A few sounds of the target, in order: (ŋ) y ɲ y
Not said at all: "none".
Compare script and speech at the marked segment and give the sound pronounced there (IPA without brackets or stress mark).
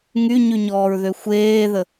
ŋ